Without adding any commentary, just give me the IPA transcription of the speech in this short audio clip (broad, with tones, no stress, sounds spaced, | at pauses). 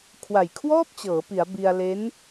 kʰ w a˨˩ j kʰ w ɔː˥˩ p̚ t͡ɕ ɤː˩˦ p i˩˦ a̯ b i˧ a̯ l e˦˥ n